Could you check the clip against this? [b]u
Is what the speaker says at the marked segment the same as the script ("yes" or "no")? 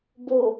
yes